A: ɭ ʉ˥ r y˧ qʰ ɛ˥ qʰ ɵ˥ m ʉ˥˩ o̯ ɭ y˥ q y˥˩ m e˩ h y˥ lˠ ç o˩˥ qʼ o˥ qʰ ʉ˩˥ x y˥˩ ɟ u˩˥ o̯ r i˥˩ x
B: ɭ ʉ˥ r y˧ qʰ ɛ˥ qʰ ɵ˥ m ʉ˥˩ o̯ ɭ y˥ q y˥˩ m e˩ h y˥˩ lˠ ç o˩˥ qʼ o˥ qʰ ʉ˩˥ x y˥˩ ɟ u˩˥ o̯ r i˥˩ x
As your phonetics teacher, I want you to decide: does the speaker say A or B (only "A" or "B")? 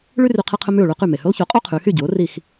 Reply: A